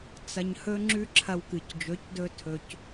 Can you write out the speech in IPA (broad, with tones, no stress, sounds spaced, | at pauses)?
t͡s ɐ˧ ɲ h ɵ˦ ŋ͡ǁ ʉ˦ ǁʰ ɐ˧ w k ɨ˨ c d͡ʒ ɵ˨˦ c d ɵ˧ tʰ ɵ˨ c